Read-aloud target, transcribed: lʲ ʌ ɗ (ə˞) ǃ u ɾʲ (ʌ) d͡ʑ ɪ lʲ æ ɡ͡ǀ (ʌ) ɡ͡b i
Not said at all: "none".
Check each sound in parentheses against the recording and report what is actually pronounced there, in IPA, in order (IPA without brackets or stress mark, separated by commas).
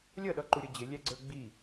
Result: ʌ, ʌ, ə˞